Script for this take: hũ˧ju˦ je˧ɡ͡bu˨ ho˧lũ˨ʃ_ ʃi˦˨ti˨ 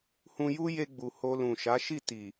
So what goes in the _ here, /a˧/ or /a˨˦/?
a˨˦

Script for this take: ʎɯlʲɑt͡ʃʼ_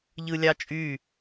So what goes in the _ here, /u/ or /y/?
y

